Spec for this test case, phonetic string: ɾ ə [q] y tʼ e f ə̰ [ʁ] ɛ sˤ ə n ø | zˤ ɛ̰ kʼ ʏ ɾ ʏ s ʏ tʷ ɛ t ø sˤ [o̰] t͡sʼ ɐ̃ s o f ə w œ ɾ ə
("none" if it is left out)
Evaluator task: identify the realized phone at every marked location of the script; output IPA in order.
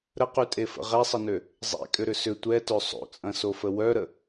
q, ʁ, o̰

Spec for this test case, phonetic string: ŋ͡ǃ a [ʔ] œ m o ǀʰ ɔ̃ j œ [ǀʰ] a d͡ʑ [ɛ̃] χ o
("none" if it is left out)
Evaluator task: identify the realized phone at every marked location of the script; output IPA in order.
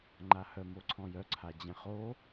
h, ǀʰ, ɛ̃

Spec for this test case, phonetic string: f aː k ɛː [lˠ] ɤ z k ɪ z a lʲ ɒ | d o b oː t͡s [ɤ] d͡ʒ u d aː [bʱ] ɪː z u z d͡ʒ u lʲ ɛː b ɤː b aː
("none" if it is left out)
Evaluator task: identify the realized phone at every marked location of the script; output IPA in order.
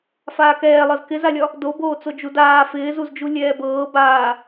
lˠ, o, f

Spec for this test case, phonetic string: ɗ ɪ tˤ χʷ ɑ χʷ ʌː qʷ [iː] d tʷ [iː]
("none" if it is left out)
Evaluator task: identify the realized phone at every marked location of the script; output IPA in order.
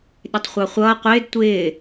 ɪː, ɪː

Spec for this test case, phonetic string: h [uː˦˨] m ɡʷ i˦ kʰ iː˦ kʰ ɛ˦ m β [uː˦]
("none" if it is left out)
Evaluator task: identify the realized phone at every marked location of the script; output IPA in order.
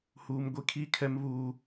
uː˦, uː˦

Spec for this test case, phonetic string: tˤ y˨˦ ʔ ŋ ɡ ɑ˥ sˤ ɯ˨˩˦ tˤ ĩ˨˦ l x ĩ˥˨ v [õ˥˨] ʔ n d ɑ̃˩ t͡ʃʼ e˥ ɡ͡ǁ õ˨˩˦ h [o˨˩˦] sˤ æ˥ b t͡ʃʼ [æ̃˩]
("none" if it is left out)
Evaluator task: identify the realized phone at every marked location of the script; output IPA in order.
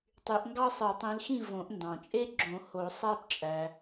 õ˨˩˦, o˨˩˦, æ˩

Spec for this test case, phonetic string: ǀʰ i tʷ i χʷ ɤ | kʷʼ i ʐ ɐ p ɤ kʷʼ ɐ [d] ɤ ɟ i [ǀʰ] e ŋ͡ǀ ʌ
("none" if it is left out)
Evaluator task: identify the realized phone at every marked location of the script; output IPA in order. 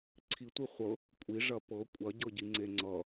ɟ, ŋ͡ǀ

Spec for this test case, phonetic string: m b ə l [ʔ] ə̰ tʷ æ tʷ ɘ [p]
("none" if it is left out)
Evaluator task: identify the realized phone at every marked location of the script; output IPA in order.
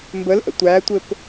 ʔ, p

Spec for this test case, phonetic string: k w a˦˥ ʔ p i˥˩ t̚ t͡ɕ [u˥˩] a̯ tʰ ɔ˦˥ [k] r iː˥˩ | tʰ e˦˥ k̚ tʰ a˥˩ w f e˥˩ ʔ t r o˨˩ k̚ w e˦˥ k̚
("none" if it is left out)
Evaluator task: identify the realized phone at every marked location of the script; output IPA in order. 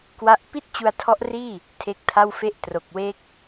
u˧, ʔ

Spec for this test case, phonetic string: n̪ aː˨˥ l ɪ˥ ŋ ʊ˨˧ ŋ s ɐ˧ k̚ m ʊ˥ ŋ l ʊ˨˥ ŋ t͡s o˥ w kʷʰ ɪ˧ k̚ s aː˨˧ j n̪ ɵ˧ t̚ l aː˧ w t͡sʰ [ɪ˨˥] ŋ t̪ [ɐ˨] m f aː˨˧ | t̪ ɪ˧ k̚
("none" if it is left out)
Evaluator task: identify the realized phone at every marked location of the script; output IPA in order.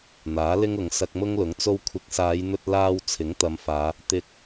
ɪ˨˥, ɐ˨˧

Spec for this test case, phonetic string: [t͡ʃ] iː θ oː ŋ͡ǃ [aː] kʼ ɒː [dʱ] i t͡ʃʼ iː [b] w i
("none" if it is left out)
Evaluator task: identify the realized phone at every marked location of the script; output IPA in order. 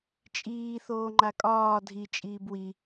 t͡ʃʼ, a, dʱ, b

